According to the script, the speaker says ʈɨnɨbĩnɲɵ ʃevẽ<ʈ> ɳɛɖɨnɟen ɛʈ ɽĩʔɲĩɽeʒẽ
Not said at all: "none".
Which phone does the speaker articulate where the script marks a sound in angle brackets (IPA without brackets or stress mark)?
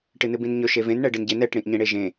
n